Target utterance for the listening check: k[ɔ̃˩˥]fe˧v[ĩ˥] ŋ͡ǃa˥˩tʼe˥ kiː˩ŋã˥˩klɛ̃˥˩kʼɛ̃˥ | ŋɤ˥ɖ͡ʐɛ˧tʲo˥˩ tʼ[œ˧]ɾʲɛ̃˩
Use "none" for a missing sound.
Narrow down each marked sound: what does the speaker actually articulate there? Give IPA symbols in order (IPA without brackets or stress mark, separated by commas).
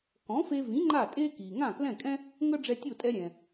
ɔ̃˩˥, ĩ˩˥, ɛ˧